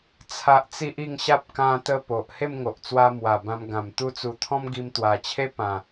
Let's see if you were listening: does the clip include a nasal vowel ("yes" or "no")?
yes